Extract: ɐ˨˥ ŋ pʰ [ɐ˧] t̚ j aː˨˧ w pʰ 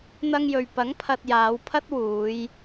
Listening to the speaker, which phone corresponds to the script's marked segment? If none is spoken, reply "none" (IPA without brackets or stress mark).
ɐ˧